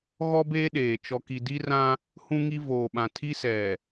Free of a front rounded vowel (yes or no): yes